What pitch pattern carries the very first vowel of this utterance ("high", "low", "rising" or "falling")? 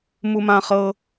high